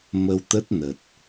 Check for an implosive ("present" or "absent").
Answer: absent